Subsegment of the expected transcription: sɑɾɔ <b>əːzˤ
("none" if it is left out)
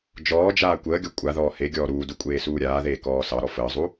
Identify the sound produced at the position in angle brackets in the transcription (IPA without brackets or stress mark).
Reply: f